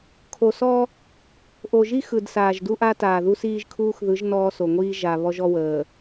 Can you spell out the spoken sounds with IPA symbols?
kʰ o˨ s ɔ˦ | ʔ o˨ ʒ i˦ x ɯ˨ d s aː˨ ʒ d u˦ ʔ a˦ t aː˨ ð u˦ s iː˦ ʒ kʰ uː˦ x ð ɯ˨˦ ʒ n ɔː˦ s o˨ ŋʷ iː˦ ʒ a˨ β ɔ˦ ʒ ɔ˦ w əː˨

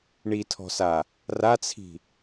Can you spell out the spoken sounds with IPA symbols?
ɳ i tʰ ɔ̤ s a | r a t͡sʰ i̤

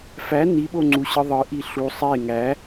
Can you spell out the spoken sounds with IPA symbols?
f æ n i ɓ o ŋ͡ǀ u ɕ ɯ ðˤ ɯ ʔ i ɬ u sˤ e ŋ æ

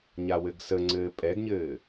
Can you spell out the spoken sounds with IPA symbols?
ɲ a w ɘ ɡ s ə ŋ͡ǀ ɘː pʼ ɛ ɡ ɲ ɘː

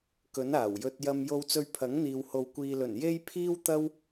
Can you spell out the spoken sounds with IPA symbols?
k ɵ˨˥ n aː˨˩ w j ɵ˧ t̚ j ɐ˧ m j o˧ w t͡s ɵ˧ ɥ pʰ ɐ˨˥ ŋ n̪ iː˨ w h o˨ w kʷ iː˨ l ɵ˨˩ n j e˧ j pʰ iː˥ w t̪ ɐ˥ w

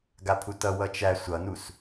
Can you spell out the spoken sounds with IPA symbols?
ɡ a pʰ u t ʌ w ʌ t͡ʃ æ sʷ ʌ n u s

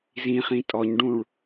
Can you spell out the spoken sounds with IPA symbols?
z ĩ χ ĩ tʼ ɔ ɲ ɖ ũ ɭ

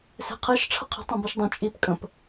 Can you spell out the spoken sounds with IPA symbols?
s e̤ qʰ e ʃ ʈ͡ʂʰ ə qʰ i̤ tˤ õ b i ʃ dˤ ẽ t͡ʃʼ i p kʼ ə̃ p

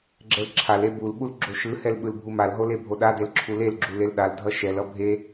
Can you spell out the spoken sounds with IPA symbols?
ɡ͡ǁ ɛ l ǁʰ a l e b u l ɓ u l ɡ͡ǁ o ʃ ɯ h ɛ l ɓ ɯ l bʱ u m a l ɦ o l e bʱ o ɗ a d e l ǁʰ u l e l ɡ͡ǁ u l e l ɗ a l dʱ ʌ ʃ ɛ l ʌ bʱ e

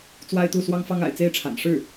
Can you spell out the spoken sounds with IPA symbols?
t͡s w a˥ ɪ̯ t̪ u˥˩ s w ɑ˥ ŋ f ɑ˥ ŋ a̰˨˩ ɪ̯ t͡s e˥ ɪ̯ ʈ͡ʂʰ a̰˨˩ n ʂ ɻ̩˥˩

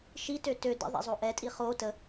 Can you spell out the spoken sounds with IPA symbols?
ʃ i t ø t ø d ə̰ ðˤ ḛ zˤ o ʔ ɛ tʼ i χ o t ə

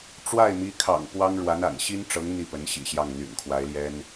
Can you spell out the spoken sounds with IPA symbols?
ʈ͡ʂ w a˥˩ ɪ̯ m i˧˥ kʰ ɑ̰˨˩ ŋ p w ɑ˥ ŋ ɻ w a˧˥ n a̰˨˩ n ɕ i˥ n ʈ͡ʂ ɤ˧˥ ŋ n̪ i˥˩ p ə˧˥ n ɕ ḭ˨˩ ɕ j ɑ˥˩ ŋ n̪ y̰˨˩ n kʰ w a˧˥ ɪ̯ l j ɛ˥ n

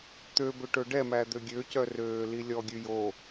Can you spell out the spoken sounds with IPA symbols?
t̪ ø b ø ʈ ɵ ɖ ɛ m æ d̪ ø ɡʲ ø c œ r øː l i lʲ ɔ ɡʲ ʉ j o

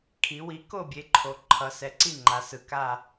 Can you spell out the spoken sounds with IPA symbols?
kʰ i˩˧ w i˩˥ k o˥˧ bʲ e˩˥ ǃʰ o˩˧ ǃʰ ʌ˩˧ s ɛ˩˥ ǀ i˥˧ ŋ͡ǃ a˩˧ s ɯ˩ k a˥˧

